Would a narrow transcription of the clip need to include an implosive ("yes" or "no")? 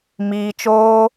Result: no